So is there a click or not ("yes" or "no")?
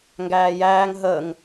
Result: no